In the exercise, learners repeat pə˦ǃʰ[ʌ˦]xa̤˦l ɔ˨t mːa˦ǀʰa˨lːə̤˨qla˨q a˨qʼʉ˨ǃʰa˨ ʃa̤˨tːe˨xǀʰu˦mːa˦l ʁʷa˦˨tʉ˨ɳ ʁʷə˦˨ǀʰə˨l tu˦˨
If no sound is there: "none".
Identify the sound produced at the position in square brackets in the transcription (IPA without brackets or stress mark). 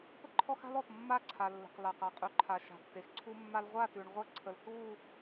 ɔ˦